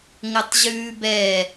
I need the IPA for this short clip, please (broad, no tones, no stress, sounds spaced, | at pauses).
ŋ ə tˤ ʑ ʉː b ɛ